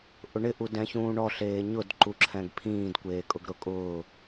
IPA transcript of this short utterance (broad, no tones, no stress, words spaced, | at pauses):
ʔʊɳɪ ʔudɛ̃çũːɳɔ ɬeːɲʊd ǃuǁʰɛ̃ɡpʰĩːd kʷeːkʼʊɡɾʊkʼʊː